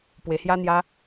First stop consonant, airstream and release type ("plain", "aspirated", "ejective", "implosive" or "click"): plain